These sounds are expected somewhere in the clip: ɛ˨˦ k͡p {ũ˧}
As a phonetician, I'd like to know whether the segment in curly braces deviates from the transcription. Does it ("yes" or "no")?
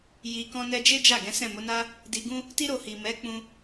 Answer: no